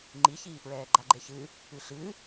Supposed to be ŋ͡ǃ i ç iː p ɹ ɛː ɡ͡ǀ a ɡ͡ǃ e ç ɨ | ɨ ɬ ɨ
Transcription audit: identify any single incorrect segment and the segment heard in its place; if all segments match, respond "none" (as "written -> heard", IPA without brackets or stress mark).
ɡ͡ǀ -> ɡ͡ǃ